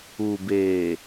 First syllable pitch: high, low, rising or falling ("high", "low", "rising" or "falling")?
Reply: low